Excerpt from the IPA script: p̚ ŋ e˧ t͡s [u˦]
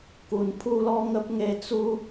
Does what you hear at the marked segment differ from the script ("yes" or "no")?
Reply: no